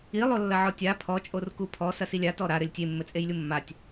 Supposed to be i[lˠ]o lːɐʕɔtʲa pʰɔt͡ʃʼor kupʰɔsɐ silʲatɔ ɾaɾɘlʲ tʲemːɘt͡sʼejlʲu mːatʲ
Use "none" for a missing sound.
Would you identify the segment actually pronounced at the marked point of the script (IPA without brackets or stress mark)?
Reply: lˠ